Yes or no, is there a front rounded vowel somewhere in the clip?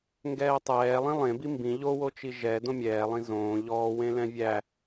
no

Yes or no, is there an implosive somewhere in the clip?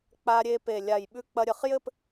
yes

